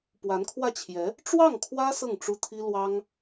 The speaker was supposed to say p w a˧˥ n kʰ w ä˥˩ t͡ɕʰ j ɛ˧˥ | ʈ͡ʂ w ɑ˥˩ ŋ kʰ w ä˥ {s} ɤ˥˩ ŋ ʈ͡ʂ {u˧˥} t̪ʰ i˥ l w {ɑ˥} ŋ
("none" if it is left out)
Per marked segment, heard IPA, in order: s, u˥, ɑ˥

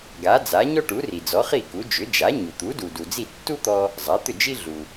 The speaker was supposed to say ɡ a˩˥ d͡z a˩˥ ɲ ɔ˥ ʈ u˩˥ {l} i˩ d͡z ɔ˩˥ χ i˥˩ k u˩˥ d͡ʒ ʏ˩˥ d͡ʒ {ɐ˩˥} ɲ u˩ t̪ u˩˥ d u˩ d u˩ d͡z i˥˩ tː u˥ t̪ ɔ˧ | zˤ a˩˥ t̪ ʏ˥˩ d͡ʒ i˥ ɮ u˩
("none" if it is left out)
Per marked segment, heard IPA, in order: r, a˩˥

